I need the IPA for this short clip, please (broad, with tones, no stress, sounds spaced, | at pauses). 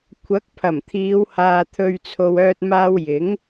kʷʰ ɐ˨˥ k̚ pʰ ɐ˨˩ m t̪ʰ iː˨˧ w h aː˨ t̪ʰ ɵ˨ ɥ t͡sʰ o˨ w œː˧ t̚ m aː˧ w j ɪ˨˥ ŋ